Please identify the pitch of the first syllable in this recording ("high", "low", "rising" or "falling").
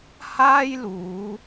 high